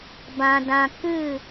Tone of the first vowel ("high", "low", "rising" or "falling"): low